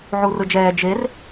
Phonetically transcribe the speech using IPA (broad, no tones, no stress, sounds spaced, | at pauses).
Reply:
ʕ u r ɯ d͡ʒ ɛː d͡ʒ e r